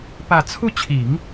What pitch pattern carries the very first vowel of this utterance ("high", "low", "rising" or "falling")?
low